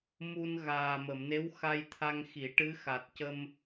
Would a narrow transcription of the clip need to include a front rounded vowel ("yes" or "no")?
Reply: no